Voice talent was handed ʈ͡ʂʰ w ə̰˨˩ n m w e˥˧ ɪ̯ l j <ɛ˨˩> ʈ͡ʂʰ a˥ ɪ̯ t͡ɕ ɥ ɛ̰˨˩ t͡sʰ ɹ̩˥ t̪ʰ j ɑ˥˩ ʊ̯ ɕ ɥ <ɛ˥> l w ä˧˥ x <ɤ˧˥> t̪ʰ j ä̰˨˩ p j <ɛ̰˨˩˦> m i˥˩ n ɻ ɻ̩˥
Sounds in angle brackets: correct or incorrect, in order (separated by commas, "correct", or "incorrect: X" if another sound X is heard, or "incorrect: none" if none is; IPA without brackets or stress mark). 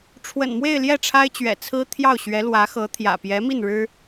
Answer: incorrect: ɛ˥˩, incorrect: ɛ˧˥, correct, incorrect: ɛ˧˥